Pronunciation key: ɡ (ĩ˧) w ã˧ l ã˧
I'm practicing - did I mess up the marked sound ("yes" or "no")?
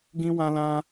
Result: no